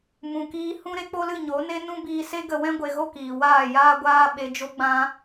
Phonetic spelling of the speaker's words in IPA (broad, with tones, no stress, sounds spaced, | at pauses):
m ũ˨ k iː˧ h ũ˦ ɾ e˦ k͡p o˦ l ɨ˦˨ ɲ o˨˦ n e˦ n ũ˦ b iː˧ s e˦ ɡ ə˧ w ɛ̃˦ ɡʷ e˧ ɣ o˦ k iː˨ w aː˦˨ j aː˦ ɡʷ aː˦ ɓ e˧ d͡ʒ o˦ ɡ͡b ã˦